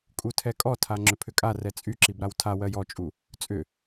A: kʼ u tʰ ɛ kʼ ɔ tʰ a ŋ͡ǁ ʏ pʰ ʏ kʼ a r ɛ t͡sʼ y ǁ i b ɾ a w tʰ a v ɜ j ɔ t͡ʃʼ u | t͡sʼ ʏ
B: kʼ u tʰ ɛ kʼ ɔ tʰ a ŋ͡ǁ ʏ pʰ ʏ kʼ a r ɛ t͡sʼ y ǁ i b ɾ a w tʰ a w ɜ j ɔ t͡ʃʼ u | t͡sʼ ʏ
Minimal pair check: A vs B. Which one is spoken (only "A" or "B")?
B